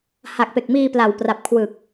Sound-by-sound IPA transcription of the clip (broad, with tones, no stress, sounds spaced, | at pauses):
h a˨˩ k̚ p e˨˩ k̚ m iː˧ p l a˨˩ w p r a˨˩ p̚ kʰ w ɯ˨˩ k̚